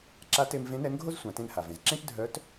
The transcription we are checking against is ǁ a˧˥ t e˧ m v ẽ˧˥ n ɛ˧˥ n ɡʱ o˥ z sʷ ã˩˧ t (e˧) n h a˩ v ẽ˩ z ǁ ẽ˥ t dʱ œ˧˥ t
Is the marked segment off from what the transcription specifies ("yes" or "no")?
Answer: yes